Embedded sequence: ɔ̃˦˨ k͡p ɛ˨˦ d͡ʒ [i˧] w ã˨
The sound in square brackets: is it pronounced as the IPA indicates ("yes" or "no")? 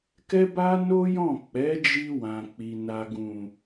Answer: yes